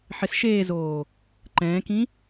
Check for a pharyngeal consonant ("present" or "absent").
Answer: present